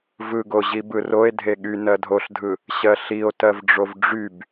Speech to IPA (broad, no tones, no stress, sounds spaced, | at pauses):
v ɯ ɡ o ʑ i b ɯ r o e̯ dʱ e ɠ y n ɜ dʱ o ɬ dʱ ɯ | ɕ ɜ ɬ i o̯ t ɜ v ɖ͡ʐ o v ɖ͡ʐ y b